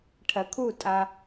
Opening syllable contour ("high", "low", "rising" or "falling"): low